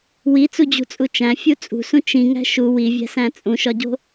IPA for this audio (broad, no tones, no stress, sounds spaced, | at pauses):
w i t͡s u d͡ʑ ṳ t͡sʼ u t͡ʃ æ̃ fʲ u t͡sʼ ṳ s ũ t͡ʃ ĩ ŋ æ̤ ʃ u w i vʲ æ̤ s æ̃ t͡sʼ ũ ʃ ɒ ɟ o̤